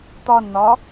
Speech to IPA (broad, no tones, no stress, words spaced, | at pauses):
t̪ɒnn̪ɒ